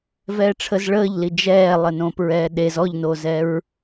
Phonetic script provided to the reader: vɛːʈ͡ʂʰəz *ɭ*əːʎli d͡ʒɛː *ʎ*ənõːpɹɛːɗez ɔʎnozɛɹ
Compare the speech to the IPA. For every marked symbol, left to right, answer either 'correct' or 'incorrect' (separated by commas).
correct, incorrect